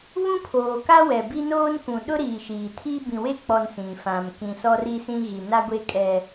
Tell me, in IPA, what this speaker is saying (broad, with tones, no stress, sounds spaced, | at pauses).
β ũ˦ pʰ oː˨ k a˦ w ɛ˨ b i˦ n oː˦ n k ũ˨ ɗ ʊ˦ ɾ iː˨ ʃ iː˨ tʰ i˦ b ĩ˨ w e˦ k͡p ɔ˨ n s ĩ˨ f ã˨ m k ĩ˨ s ɔ˦ r i˦ s ĩ˦ ɣ i˨ n a˦ ɡʷ e˦ kʼ ɛ˦